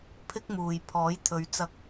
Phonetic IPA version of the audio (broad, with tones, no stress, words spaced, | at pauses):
pʰɪ˥k̚muː˨j pʰɔː˨˥jt̪ʰɵ˨˧ɥ t͡sɐ˨k̚